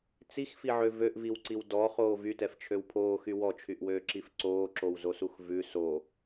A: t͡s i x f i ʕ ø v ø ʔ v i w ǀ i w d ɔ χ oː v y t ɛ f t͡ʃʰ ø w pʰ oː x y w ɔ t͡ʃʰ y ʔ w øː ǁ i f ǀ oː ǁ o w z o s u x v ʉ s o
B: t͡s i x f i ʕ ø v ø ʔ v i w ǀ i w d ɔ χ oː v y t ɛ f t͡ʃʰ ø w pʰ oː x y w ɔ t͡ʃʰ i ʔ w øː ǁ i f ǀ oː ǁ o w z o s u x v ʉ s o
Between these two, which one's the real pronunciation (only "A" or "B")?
A